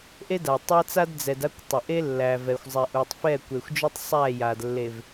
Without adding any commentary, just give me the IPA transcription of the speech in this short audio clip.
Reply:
ʔe˦da˨tˤa˦t͡sa˦d d͡zɛ˨d a˦kʷ tˤə˨ʔe˦lːæ˨vɛ˨xʷ zˤɛ˨ʔu˨tˤ fɛ˦˨kʷe˨xʷd͡ʒu˦tˤ sˤæ˦˨ja˨d lːe˨v

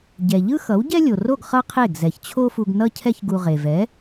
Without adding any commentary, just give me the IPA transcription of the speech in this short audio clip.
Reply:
ɟɛ˩ʎɯ˥ xʌ˩˥wɟɛ˥lʲo˩ro˥˩ɡ χʌ˥qʰe˥˩ɡ zɛ˩çt͡ɕʰo˥fu˧ɡ nʌ˥cʰɛ˥çɡu˧ ʁe˩vɛ˩˥

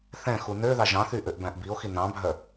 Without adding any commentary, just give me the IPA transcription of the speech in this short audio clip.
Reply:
θɛ̃xu nø ðɑʒɑ̃θy ʔøʔbæ̃ʔbio̯xi nɑ̃bʱœ

